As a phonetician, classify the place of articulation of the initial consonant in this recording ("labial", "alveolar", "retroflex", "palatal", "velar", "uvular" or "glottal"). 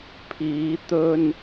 labial